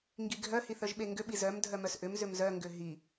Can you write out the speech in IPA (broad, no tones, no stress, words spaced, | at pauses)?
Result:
ŋɡiɡʱœ hiθœʒɓeŋɡʏ ɓizœm dʱœmœsʔʏm zʏmzœ ŋɡʏɦi